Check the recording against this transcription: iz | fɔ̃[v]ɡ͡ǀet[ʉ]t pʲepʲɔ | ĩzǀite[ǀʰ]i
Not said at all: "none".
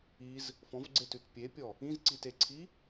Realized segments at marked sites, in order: v, ʉ, ǀʰ

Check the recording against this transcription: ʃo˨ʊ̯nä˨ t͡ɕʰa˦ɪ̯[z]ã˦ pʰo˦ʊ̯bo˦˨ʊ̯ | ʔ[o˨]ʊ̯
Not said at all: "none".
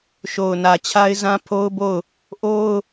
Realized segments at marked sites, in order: z, o˦

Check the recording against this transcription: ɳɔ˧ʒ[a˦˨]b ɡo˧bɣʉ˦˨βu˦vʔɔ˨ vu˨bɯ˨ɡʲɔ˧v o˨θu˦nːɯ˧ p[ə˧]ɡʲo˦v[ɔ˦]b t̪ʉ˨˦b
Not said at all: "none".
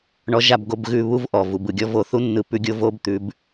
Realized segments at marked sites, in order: a˦˨, ʉ˧, o˦

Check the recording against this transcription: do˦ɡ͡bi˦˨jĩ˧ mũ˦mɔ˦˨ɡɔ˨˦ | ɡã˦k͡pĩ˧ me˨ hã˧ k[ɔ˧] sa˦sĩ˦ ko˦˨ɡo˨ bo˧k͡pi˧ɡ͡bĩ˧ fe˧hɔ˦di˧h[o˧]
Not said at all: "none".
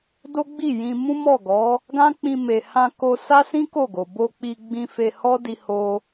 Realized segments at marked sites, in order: o˧, o˧

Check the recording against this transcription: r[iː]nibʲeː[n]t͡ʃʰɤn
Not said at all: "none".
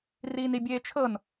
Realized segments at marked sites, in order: iː, none

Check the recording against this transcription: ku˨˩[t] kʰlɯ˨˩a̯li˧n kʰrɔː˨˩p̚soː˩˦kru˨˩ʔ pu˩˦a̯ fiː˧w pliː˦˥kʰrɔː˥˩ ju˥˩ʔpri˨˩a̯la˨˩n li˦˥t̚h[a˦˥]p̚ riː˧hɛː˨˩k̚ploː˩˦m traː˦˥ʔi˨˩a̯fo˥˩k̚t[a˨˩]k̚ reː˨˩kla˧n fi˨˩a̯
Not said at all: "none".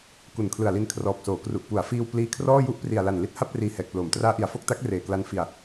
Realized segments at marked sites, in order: n, a˥˩, a˦˥

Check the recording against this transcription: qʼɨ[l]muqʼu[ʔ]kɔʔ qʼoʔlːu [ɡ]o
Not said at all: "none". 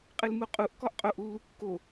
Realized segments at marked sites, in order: l, ʔ, kː

